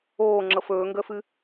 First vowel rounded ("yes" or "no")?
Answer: yes